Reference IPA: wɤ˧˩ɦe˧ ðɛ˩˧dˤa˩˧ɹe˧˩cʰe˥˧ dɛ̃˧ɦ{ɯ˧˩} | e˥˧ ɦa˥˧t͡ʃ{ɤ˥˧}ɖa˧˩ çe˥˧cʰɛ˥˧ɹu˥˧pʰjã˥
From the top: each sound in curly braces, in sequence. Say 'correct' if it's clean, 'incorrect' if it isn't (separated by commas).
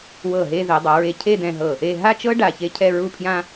incorrect, incorrect